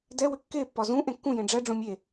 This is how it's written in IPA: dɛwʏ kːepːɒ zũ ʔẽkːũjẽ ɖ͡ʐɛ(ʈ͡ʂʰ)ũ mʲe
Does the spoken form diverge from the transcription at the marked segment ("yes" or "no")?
yes